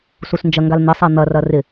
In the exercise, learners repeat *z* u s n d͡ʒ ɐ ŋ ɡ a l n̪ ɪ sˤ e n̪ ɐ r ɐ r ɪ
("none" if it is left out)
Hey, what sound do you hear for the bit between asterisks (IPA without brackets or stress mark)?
s